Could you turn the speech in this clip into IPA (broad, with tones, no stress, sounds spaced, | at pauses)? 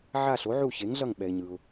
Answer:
ʕ a˦˨ ɬ o˨˥ ʕ u˦˨ ç e˨˥ ŋ ɮ ʌ˦˨ ŋ ɓ ɛ˨ ɪ̯ ɲ ɯ˨ ʊ̯